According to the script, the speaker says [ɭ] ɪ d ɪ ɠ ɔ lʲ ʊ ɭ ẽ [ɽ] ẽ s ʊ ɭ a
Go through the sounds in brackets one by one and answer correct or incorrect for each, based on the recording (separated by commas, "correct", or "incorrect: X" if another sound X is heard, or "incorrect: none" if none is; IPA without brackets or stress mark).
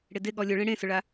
incorrect: ɽ, correct